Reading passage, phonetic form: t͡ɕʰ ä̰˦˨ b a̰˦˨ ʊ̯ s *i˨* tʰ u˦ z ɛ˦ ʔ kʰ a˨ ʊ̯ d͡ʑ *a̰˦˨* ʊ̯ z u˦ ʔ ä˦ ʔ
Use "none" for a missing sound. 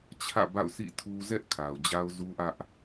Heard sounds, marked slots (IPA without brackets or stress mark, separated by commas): ḭ˦˨, a˦